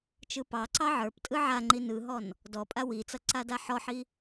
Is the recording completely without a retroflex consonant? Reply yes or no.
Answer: yes